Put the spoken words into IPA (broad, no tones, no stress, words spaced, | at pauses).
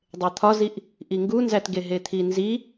dˤet̪ʰɒziʔ | ʔiŋɡunzætɡe ɦet̪ʰinzi